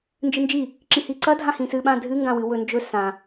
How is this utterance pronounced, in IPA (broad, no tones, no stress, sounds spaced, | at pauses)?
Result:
n d͡ʒ ɨ n d͡ʒ i | ǁ ĩ h i ǀ ɐ dʱ ã h ĩ s ɨ ɓ ã dʱ ɨ ŋ ɡ ã w ɨ w ɵ n d͡ʒ ɵ s ã